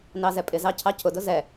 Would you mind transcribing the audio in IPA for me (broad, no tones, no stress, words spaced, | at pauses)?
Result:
nɑzɛpʼɪzɑ cʰɑcʰʊdʊ zɛ